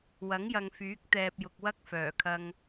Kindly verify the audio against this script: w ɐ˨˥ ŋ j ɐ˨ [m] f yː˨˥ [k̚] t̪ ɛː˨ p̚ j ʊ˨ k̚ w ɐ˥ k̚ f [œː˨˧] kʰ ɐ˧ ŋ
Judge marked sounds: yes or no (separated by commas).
no, yes, no